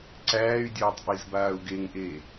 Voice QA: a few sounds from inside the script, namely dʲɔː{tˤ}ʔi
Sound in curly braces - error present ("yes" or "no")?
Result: no